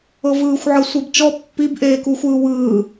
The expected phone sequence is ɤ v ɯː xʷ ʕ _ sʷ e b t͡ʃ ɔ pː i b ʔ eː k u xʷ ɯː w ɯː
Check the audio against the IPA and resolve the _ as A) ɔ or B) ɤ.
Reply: B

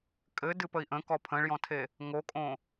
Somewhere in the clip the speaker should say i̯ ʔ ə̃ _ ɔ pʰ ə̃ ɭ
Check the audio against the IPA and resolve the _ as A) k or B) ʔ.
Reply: A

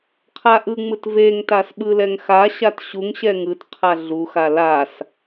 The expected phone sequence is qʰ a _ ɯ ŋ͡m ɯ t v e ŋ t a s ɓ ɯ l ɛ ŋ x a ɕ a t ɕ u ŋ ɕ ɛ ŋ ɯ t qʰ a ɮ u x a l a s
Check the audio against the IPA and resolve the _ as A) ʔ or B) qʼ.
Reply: A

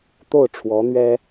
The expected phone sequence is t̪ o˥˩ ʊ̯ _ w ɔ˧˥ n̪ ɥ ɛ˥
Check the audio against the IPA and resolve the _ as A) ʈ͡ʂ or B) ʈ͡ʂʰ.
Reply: B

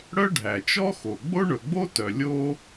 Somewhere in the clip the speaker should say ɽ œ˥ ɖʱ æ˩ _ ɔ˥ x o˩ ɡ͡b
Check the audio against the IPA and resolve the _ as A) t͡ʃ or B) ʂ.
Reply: A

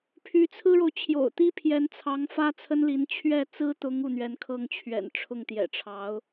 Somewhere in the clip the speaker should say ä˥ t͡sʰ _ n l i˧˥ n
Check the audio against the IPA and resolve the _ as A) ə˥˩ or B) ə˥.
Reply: B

